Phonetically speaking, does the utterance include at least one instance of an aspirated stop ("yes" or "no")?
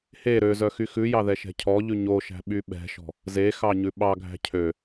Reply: yes